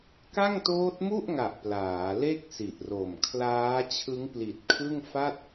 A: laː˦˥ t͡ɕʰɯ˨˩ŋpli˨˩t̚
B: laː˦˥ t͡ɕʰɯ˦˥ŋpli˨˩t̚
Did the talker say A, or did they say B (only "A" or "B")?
B